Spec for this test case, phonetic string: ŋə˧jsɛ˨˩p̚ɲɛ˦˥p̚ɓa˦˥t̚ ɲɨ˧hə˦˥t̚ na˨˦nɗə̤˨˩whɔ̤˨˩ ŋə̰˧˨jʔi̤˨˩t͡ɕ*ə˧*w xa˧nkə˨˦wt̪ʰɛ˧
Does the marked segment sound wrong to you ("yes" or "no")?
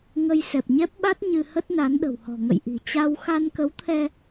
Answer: yes